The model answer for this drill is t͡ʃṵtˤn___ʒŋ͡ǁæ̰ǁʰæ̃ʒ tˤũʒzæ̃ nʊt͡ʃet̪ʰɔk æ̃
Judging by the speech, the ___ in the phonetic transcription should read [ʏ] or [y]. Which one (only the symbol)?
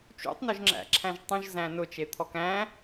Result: ʏ